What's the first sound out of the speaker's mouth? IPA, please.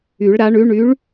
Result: y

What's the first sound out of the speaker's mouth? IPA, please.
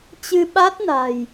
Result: t͡ɕ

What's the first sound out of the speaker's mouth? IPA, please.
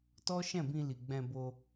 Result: t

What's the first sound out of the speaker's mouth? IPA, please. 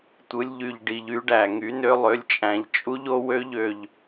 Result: tʷ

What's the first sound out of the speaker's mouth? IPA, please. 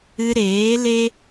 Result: ɨ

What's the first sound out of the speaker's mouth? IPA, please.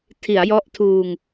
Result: tʰ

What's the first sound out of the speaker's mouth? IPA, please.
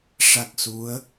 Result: ʂ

